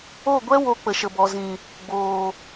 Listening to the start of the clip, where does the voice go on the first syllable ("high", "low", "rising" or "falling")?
falling